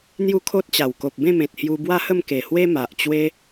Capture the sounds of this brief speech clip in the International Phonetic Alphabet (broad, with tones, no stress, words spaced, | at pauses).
n̪ju˦kʰo˦t̚t͡ɕa˨˩w ko˨p̚bẽ˥˧mẽ˨t̚ hju˧bwa˦hə˥˧mke˨˩ hwe˦ma˨ʔt͡ɕwe˦